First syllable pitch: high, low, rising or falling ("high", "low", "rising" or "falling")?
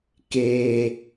low